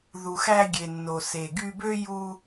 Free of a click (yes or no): yes